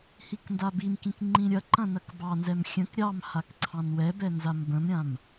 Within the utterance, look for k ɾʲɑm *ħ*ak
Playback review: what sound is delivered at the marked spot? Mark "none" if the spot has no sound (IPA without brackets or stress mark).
h